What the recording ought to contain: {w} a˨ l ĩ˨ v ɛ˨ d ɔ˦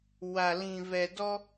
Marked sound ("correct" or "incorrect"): correct